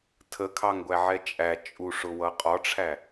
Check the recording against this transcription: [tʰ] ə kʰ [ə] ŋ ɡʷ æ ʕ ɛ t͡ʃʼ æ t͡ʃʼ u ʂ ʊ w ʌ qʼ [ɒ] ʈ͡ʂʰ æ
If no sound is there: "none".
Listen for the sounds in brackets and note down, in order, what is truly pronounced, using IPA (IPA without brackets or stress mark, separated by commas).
tʰ, ɑ, ɒ